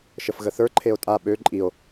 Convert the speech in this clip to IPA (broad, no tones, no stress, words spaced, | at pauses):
ʃəfɣəθə˞ ǃʰeo̯tʼa ɓø ǃʼio̯